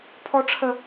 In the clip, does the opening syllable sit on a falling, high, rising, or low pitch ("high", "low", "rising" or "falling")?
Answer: high